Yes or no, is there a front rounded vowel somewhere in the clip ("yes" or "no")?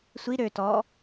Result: yes